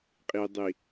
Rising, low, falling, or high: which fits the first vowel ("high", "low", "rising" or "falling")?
low